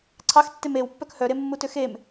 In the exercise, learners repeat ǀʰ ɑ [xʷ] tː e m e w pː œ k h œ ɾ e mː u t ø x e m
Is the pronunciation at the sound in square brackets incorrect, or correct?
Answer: incorrect